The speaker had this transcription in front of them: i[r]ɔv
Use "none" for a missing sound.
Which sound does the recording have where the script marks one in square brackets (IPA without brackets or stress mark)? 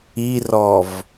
r